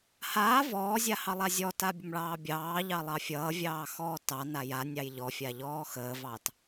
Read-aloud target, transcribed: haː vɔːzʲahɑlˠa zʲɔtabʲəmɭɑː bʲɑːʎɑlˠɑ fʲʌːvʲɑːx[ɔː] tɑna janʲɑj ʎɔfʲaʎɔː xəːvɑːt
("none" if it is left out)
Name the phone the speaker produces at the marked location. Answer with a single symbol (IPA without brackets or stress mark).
ɔː